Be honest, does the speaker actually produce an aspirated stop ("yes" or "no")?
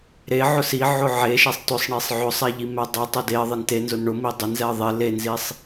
no